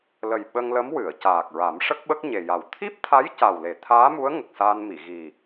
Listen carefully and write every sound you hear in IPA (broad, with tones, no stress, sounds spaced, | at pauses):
l ə˨˩ j ɓ ə˧ ŋ l ə˧˥ m w ɨ˨˩˨ ə̯ c aː˨˩ k̚ ɹ a˨˩˦ m ʂ ə˦˥ k̚ ɓ ə˦˥ k̚ ɲ e˨˩ j a˨˩ w t̪ʰ i˦˥ p̚ t̪ʰ a˧˥ j c a˨˩ w l e˨˩˦ t̪ʰ aː˧˥ m u˧˥ ə̯ ŋ ə˨˩ k̚ s aː˧ n m i˨˩˨ ɣ i˨˩